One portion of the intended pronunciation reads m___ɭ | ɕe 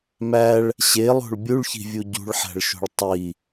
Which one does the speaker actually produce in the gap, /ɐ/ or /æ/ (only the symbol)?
æ